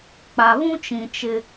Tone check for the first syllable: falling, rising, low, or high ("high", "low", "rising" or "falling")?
low